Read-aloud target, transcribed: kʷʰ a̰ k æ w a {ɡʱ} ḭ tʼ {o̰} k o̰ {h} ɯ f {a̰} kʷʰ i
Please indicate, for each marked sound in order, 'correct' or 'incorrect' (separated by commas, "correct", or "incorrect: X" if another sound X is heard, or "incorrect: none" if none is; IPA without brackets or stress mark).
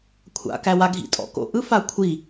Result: correct, incorrect: ɔ̰, incorrect: ʔ, incorrect: a